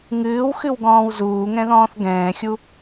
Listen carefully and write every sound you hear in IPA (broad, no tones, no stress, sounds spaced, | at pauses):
ŋ ɨː w x ɨ w ɡ ɔ̃ː w z uː ŋ ɛ̃ ð ɔ̃ː θ ɡ ɛ̃ː xʲ u